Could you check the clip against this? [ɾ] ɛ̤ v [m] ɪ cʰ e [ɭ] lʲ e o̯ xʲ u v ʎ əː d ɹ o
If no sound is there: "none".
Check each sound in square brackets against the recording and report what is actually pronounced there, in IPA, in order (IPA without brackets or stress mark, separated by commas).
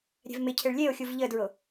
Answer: ɾʲ, m, ɭ